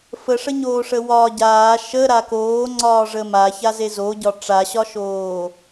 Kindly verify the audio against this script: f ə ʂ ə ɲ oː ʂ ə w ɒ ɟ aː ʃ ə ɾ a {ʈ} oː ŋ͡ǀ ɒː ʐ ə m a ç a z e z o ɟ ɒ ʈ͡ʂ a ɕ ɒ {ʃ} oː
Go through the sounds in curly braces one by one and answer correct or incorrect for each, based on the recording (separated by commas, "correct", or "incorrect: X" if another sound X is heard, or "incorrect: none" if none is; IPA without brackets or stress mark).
incorrect: k, correct